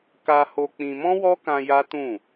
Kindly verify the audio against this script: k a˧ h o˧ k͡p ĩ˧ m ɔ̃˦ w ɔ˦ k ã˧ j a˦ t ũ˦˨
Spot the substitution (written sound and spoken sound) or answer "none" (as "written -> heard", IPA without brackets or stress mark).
none